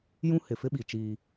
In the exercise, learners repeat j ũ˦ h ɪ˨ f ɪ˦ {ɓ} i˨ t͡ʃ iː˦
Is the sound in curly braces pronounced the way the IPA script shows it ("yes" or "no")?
yes